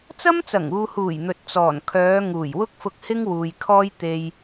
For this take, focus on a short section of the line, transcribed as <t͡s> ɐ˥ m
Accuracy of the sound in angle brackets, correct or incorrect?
correct